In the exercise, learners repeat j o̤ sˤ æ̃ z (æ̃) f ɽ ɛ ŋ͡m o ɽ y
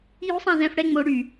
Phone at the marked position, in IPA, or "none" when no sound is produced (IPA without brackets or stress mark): ɛ̃